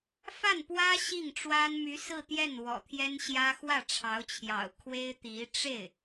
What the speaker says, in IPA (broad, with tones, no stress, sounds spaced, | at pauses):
f a˥˩ n p w ä˥ ɕ i˥˩ ŋ ʈ͡ʂ w a˥ n m y˧˥ s ɹ̩˥˧ t̪ j ɛ˥˩ n w ɔ̰˨˩ t̪ʰ j ɛ˥ n ɕ j ä˥ x w ä˥˩ ʈ͡ʂʰ ɑ˧˥ ʊ̯ t͡ɕʰ j ɑ̰˨˩ ʊ̯ kʰ w e˥ ɪ̯ t̪ i˧˥ ʈ͡ʂ e˥˩ ɪ̯